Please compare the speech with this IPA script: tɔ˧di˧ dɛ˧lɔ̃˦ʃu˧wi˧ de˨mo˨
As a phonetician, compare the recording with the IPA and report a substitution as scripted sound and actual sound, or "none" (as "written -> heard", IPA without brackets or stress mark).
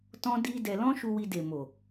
ɔ˧ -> ɔ̃˧